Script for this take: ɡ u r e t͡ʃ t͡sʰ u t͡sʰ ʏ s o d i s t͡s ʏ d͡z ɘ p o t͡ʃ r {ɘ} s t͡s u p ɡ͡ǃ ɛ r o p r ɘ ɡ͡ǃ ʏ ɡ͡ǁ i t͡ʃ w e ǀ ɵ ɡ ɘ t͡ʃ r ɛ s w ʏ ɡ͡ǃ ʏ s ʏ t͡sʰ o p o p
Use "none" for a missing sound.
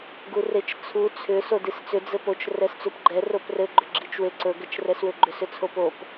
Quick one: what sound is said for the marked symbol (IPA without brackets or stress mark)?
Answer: ɛ